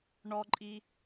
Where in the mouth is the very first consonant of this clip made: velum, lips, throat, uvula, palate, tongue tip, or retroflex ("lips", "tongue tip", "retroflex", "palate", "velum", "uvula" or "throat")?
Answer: retroflex